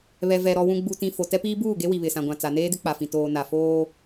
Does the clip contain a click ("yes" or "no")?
no